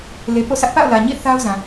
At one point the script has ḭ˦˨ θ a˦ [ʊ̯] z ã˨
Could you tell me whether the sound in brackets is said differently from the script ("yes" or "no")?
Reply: no